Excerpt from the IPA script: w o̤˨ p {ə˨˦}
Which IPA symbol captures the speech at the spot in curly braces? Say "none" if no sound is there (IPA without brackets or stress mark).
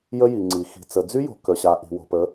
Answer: ə˨˦